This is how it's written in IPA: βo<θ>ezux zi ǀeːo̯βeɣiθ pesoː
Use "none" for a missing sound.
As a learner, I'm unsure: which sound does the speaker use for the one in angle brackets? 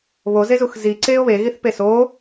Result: z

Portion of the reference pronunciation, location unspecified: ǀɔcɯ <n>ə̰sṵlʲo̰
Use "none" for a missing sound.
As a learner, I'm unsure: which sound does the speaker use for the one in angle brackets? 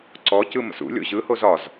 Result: m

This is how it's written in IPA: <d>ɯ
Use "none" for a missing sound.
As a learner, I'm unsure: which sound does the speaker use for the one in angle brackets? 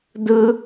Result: d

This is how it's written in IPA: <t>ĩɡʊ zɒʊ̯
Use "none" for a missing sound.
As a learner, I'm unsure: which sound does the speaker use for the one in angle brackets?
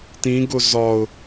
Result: t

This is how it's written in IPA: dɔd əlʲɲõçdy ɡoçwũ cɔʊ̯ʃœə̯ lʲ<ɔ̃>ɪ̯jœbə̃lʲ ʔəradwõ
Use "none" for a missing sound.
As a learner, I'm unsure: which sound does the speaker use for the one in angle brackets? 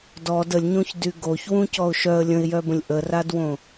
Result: ə̃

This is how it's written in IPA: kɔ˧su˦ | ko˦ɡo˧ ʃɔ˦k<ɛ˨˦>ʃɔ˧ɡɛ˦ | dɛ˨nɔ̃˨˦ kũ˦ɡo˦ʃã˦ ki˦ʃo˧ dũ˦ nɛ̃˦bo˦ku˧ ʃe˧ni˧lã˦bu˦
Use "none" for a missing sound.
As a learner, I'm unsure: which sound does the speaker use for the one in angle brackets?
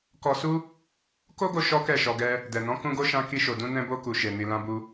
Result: ɛ˦˨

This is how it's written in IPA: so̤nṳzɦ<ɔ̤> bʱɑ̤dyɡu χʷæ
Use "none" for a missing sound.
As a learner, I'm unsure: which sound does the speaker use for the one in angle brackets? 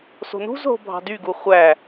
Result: o̤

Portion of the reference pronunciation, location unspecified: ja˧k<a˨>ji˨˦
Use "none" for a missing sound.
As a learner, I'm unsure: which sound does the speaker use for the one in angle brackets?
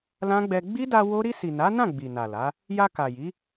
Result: a˨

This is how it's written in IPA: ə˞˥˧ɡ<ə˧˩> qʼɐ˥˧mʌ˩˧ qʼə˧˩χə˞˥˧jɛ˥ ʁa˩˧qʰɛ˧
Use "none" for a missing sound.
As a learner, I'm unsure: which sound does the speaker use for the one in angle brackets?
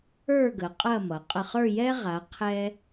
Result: ə˩˧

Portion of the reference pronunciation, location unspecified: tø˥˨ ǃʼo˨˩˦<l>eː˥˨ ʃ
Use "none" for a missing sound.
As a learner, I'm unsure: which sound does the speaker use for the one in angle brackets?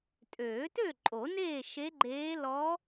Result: n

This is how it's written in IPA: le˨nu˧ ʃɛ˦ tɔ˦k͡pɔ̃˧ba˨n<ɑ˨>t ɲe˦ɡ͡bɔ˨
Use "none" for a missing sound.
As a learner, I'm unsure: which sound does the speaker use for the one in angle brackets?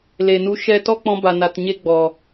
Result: a˨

